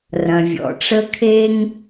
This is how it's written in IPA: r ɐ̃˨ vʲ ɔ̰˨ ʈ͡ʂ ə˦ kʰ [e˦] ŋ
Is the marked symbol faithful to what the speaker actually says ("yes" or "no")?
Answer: yes